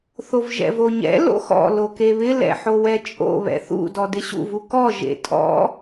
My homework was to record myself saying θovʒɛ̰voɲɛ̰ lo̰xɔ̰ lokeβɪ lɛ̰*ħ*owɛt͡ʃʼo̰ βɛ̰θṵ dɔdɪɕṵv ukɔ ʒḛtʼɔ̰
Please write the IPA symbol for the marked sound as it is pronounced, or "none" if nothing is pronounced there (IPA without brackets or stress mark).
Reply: ħ